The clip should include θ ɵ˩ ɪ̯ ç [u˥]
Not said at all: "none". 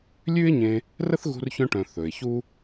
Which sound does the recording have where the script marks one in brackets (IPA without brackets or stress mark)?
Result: u˥